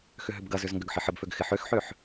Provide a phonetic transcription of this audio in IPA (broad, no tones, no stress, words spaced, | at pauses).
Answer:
xʏɦʏbɡɐzʏz ŋɡʏɡħɪħəbføɡ xɪħøxħøħ